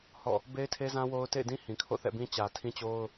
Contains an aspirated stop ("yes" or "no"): yes